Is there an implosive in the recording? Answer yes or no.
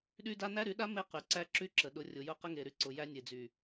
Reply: yes